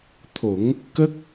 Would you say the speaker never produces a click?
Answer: yes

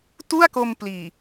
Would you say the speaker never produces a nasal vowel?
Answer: yes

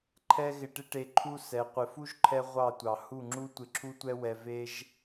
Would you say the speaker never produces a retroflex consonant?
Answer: no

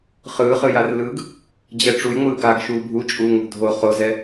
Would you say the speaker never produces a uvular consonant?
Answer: no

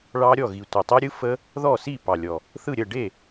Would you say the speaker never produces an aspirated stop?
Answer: yes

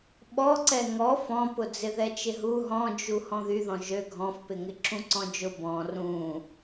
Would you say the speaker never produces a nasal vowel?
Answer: no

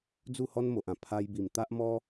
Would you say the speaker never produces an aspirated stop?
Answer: no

